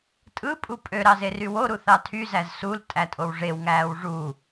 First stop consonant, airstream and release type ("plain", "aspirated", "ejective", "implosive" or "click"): ejective